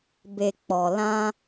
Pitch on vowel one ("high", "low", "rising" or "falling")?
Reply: low